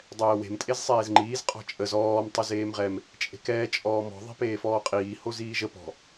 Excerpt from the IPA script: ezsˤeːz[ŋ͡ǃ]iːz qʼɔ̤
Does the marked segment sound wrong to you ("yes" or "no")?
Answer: no